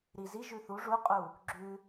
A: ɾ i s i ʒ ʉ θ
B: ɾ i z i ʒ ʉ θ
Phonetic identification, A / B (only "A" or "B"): B